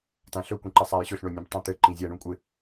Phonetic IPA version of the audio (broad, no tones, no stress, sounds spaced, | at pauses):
t ã ɬ ɵ kʷ ĩ ǃ ɘ sˤ a j ɕ ɵ ɬ ɳ o nʲ ẽ b tˤ ã t̪ ɘ ǃ ĩ zʲ a ɳ ũ kʷʼ ɪ